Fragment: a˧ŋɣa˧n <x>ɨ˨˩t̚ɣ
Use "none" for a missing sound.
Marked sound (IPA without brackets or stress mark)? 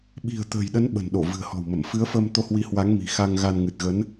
ŋ